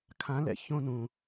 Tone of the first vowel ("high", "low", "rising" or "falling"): rising